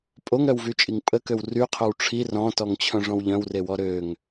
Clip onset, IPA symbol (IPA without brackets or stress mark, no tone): pʼ